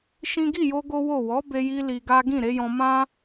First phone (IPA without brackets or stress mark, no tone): ʃ